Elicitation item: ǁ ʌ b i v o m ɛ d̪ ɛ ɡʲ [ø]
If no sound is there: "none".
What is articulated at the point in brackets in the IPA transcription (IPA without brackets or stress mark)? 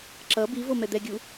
u